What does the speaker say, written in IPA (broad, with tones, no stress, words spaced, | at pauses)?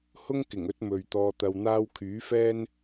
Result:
hʊ˥ŋkɪ˨˩ŋɵ˨˥t̚ mɵ˨ɥt̪ɔː˧t̪ɐ˧wn̪aː˥w kʰyː˨˥fɛː˥n